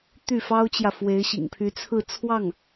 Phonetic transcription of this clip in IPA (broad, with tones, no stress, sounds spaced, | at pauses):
t̪ y˥˩ f ɑ˥ ʊ̯ t͡ɕ j ä˨ f w e˧˥ ɪ̯ ɕ ḭ˨˩ ŋ pʰ y˧˥ t͡sʰ ɹ̩˥˧ t͡sʰ w ɑ˥˩ ŋ